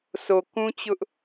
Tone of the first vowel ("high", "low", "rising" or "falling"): low